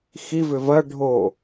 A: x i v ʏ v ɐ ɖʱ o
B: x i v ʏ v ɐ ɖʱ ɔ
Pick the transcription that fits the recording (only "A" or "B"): A